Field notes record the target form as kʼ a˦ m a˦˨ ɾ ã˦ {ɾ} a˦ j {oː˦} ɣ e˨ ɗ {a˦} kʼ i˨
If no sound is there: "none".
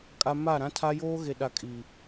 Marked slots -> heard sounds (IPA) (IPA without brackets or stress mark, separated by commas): tʰ, oː˦, a˨